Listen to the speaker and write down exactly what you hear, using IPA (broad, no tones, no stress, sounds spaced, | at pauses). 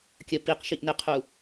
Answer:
kʲ ə p i q ʃ i ʔ n ɪ qʰ u